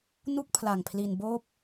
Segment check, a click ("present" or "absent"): absent